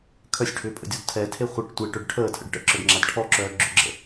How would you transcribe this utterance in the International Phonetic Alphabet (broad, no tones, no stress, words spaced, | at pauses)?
kʰœsʲʈʰʏːpʼə̰dʲɔd tʰɛtʰe χʷəʈ tʷeʈœɖ ʈʰəːtʰə̰ɖ ʈə̰ǁœɖŋ͡ǁad ʈʰɔǁœː ɡ͡ǁʏɡ͡ǁə̰